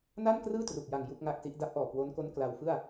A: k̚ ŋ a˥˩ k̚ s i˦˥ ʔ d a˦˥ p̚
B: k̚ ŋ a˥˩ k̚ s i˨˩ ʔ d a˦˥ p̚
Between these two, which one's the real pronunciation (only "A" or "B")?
A